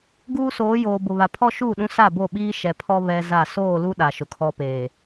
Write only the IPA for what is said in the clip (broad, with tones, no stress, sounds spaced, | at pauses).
ɡ uː˦ s oː˨˦ j oː˨ b ʊ˨ β a˨ pʰ ɔ˦ ʃ uː˦˨ ɗ ũ˦ s a˦˨ b o˦˨ ɓ iː˦ ʃ ɛ˨ pʰ ɔ˦ β ɛ˦ z a˦˨ s oː˦˨ l u˦ ɗ a˨ ʃ ʊ˨ kʰ ɔ˦ p eː˨